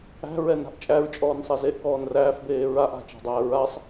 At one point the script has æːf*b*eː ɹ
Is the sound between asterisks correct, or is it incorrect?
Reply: correct